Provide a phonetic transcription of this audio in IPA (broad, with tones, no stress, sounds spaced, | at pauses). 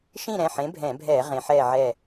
ʃ ĩ˥˨ ɾ ɛ̃˩˧˩ ħ ẽ˨˥ bʱ ɛ̃˧˩˧ bʱ ɛː˧˩˧ ʁ ẽ˩˧ ħ ɛː˧˩ ʕ ɛ˧˩